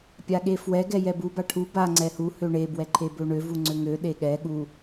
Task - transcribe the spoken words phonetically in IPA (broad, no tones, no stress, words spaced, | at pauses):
pʲaɠefwɛ ɡɛjɛbu baʈʰu ba ŋ͡ǀɛhu høɳe bwɛǃʰebøɳø vuŋ͡ǀøŋø ɗeɠɛ ɠu